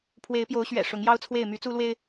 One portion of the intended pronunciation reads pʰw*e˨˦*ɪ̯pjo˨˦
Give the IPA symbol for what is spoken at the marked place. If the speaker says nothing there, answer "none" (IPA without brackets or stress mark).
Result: e˨˦